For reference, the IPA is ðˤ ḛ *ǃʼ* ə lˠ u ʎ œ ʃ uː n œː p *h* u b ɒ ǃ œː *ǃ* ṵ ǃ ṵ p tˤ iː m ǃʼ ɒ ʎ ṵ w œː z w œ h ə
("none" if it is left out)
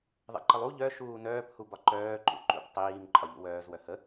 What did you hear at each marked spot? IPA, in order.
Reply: ǃ, h, ǃ

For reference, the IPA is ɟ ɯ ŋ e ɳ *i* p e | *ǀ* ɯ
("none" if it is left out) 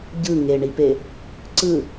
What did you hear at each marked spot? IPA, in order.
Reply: i, ǀ

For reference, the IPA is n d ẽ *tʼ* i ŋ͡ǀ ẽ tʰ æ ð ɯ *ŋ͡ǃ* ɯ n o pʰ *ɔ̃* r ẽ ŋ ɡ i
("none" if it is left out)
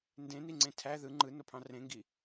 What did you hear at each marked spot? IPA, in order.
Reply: n, ŋ͡ǃ, ɑ̃

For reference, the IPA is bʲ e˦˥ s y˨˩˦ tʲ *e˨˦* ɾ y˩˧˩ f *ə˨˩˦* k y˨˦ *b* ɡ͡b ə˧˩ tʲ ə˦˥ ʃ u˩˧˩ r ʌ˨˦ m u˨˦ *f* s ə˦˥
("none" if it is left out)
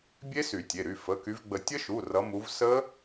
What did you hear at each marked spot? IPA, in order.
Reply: e˩˧˩, ə˩˧˩, v, v

